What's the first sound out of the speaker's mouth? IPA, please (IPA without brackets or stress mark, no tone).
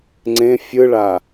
ŋ͡ǀ